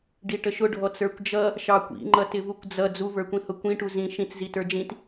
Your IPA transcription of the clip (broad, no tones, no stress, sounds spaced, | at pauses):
ɖ i ʈ ə ʃ ʊ ɖʱ ɔ t͡s ə˞ kʷ d͡ʒ ʌ | ʃ ɑ kʷ ḭ ŋ͡ǃ ʌ t ɪ v u kʷ d͡z ʌ d͡z u v ə˞ kʷ ĩ h ʊ kʷ ĩ ʈ u z ĩ ʃ ĩ t͡s z i t ə˞ d͡ʒ ĩ t